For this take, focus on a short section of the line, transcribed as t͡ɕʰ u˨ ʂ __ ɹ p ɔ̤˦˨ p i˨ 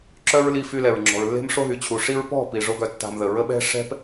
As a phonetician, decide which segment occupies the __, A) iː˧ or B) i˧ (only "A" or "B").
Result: B